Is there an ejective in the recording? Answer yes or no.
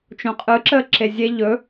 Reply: yes